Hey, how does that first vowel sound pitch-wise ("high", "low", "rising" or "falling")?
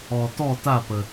low